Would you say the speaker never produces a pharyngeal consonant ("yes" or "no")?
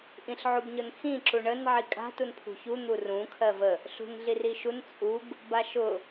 no